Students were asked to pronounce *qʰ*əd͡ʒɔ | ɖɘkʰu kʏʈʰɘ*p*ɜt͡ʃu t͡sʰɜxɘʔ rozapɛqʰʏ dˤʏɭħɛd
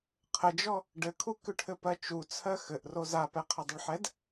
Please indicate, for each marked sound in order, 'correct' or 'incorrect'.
correct, correct

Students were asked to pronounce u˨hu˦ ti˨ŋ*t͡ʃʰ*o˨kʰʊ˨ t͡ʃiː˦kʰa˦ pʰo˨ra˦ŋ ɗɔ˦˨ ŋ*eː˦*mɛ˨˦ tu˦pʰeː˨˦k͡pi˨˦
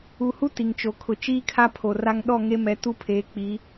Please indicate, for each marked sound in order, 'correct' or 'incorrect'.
incorrect, incorrect

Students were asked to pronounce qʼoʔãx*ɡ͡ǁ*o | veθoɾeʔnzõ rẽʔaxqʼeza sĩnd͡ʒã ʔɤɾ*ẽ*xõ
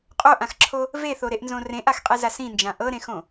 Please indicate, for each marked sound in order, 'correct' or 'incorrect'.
incorrect, correct

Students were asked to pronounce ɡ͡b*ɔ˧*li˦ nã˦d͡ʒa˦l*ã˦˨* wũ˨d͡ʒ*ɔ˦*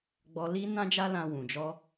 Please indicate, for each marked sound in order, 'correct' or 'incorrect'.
correct, incorrect, incorrect

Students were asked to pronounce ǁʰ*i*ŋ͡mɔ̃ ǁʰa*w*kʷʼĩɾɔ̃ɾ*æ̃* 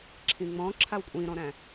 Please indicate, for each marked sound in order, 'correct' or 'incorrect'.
incorrect, correct, correct

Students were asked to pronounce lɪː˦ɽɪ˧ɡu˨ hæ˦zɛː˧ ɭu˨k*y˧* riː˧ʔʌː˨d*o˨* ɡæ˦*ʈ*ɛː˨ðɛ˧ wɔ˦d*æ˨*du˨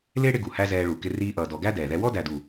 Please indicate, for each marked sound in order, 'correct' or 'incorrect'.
incorrect, incorrect, incorrect, correct

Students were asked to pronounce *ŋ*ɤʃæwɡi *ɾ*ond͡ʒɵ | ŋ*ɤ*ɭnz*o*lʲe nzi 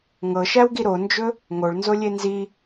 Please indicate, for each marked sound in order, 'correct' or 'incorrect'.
correct, correct, incorrect, correct

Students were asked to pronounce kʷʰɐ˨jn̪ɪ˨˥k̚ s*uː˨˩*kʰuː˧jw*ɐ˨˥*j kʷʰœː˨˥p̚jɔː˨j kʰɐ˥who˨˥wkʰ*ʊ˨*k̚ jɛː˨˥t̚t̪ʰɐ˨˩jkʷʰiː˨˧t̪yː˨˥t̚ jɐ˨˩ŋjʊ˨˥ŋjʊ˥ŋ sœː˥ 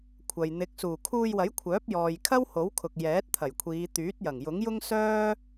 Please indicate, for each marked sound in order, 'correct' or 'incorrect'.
correct, correct, correct

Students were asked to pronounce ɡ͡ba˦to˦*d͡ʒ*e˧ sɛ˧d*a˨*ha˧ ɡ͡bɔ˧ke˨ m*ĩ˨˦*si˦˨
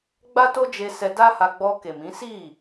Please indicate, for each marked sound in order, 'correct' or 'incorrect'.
correct, incorrect, correct

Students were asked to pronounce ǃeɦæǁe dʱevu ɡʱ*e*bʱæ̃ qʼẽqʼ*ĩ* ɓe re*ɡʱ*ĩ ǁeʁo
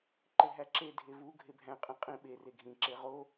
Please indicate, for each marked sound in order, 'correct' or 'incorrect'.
correct, correct, correct

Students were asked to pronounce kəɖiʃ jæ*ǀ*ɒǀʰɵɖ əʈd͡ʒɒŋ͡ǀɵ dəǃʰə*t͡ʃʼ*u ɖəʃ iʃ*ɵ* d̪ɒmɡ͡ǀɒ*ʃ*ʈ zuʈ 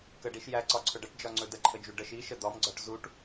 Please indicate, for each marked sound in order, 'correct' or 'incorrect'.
correct, incorrect, incorrect, incorrect

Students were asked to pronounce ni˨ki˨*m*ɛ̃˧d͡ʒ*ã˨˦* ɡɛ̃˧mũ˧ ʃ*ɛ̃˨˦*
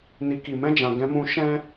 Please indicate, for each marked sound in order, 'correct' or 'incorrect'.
correct, incorrect, incorrect

